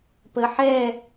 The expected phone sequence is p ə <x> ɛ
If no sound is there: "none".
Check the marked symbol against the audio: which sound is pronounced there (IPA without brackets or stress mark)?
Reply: ħ